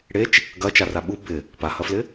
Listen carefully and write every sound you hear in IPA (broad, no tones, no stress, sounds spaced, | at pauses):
ɽ e t͡ʃ | ɡ ɐ t͡ʃ a r a ɓ u b ɪ | p a h ɐ f l ɪ